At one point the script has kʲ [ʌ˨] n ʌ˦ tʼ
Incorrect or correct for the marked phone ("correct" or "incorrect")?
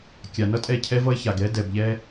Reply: incorrect